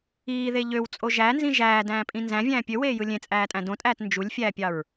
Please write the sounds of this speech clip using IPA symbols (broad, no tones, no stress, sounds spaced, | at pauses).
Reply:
iː ð e ʎ ø w t͡sʼ o ʒ æ n z ĩ ʒ æː d æ̃ː pʼ ĩ n z æ̃ vʲ æ̃ː pʲ ø w eː j ɯ lʲ ẽ t͡sʼ æː tʼ æ̃ d õ tʼ æː t n d͡ʒ u lʲ fʲ æː pʲ ɑ ɹ